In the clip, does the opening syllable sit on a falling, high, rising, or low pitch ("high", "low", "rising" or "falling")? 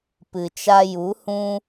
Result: low